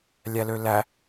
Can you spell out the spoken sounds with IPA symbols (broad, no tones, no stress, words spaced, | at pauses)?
lʲælølæ